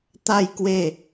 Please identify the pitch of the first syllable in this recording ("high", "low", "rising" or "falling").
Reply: falling